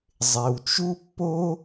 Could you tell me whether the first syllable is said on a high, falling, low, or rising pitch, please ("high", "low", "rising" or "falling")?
low